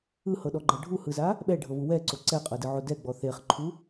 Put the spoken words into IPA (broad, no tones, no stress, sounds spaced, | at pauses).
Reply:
ɯ h ɤ ɗ ɔ ɡ͡ǃ ɤ ɖʱ u h ɯ z a | ɓ ɛ ɖʱ ɤ β u w ɛ ǀ o ǀ ɛ qʼ ɤ d ɯ ʕ o d ɛ ɡ͡b ɔ θ e χ ǃʰ u